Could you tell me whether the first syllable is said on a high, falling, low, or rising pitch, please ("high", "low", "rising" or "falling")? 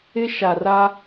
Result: high